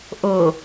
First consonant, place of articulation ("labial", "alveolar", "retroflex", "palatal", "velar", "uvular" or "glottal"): glottal